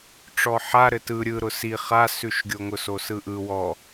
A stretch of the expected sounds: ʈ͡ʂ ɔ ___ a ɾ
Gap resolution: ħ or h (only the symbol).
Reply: ħ